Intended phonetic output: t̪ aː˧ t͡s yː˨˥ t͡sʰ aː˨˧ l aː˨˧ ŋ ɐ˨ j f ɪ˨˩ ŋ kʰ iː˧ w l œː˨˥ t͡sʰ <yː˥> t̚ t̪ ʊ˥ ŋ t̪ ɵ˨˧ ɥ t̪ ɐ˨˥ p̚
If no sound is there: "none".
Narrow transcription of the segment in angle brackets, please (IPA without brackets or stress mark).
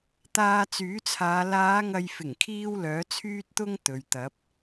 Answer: yː˥